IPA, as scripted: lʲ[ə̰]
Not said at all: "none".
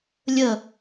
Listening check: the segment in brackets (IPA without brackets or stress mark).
ə